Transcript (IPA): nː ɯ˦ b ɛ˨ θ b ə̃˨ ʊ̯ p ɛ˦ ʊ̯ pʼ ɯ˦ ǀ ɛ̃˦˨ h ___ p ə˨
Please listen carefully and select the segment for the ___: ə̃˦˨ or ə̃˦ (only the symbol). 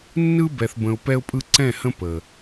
ə̃˦